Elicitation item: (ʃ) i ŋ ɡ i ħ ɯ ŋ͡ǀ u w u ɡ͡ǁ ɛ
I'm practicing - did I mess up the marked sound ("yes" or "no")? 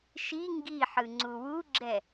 no